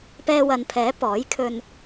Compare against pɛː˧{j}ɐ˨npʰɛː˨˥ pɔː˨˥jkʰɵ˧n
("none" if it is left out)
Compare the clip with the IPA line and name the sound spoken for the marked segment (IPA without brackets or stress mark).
w